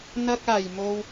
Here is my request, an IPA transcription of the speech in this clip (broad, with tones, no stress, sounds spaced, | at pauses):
n̪ ɐ˥ k̚ aː˨˩ j m o˧ w